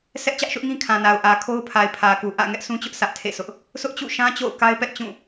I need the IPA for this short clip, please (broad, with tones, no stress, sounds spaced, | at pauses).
s ɛ˦ ʔ t͡ɕ ä˦ ʔ ʃ ʊ˦ ʔ ŋ ĩ˦ kʰ ã˨ n a˨ ʊ̯ ʔ ä˨ kʰ o˦ ʊ̯ pʰ a˨ ɪ̯ pʰ ä˨ k u˨ ʔ ä̰˦˨ ŋ ɛ˦ ʔ s ũ˦ t͡ɕ ʊ˦ ʔ s ä˦ ʔ tʰ ḛ˦˨ s ʊ˦ ʔ | s ʊ˦ ʔ t͡ɕ ṵ˦˨ ʃ ã˦ t͡ɕ o̰˦˨ ʊ̯ k a˦ ɪ̯ p ɛ˦ ʔ t͡ɕ ũ˦˨